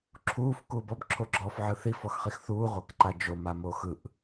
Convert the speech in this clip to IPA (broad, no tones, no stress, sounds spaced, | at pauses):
ǁʰ uː f k uː b ɔ b ǁʰ o ɡ͡ǁ ɔː f ʕ ɯ θ i f ɔ x χ i x θ uː ʁʷ a k ǃ a d͡ʒ o m a m oː x ɯ ʔ